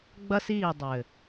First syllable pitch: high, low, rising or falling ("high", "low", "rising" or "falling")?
high